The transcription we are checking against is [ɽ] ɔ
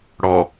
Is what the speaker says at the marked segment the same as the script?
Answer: yes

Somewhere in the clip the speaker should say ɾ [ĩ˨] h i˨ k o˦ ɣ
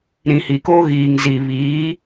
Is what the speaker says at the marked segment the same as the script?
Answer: yes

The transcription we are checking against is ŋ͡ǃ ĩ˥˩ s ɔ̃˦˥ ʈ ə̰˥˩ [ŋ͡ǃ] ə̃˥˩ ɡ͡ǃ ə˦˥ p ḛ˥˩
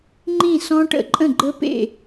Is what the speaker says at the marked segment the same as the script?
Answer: no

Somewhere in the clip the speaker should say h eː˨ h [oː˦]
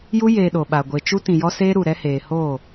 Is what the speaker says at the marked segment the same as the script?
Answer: no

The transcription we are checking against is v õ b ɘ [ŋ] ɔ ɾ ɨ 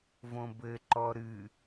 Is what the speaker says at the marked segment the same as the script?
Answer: no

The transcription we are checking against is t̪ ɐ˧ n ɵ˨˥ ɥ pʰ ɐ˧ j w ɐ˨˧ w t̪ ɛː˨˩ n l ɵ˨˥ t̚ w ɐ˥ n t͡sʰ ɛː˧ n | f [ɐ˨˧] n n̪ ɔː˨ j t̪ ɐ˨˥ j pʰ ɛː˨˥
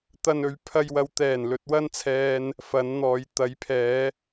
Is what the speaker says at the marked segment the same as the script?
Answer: yes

